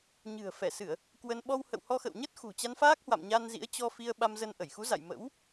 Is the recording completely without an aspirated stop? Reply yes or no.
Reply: yes